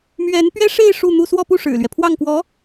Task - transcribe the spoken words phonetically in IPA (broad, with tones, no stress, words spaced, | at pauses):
mɥɛ˧˥npɥɛ˥ ʂe˥˧ɪ̯ ʂu˥˧n̪u˥˧ swɔ˥˧pu˥˩ ʂɻ̩˨˩lɥɛ˦ pʰwɑ˥˩ŋkwɔ˧˥